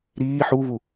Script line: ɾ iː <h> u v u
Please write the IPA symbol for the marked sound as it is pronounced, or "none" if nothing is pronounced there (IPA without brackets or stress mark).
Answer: ħ